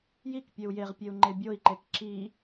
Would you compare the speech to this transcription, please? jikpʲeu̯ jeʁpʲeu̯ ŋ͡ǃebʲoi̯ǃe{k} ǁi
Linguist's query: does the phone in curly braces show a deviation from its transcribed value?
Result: no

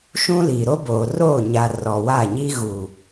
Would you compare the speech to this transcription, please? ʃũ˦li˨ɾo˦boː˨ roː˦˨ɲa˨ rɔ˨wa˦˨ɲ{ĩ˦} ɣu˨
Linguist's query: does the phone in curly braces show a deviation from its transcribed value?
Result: yes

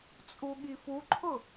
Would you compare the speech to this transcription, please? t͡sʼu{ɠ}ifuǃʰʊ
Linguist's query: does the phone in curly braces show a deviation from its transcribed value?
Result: no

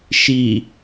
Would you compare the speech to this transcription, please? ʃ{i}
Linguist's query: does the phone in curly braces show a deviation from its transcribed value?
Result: no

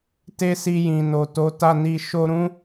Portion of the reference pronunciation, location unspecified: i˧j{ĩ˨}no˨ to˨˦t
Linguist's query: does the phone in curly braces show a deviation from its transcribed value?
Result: no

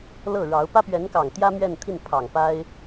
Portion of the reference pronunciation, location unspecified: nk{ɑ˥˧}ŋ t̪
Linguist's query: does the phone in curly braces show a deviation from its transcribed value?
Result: yes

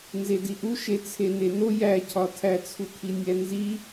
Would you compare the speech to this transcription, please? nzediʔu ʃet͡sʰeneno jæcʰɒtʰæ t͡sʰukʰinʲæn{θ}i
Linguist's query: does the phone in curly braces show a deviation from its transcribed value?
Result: yes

